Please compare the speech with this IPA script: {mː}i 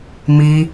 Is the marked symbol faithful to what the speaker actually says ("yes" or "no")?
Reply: no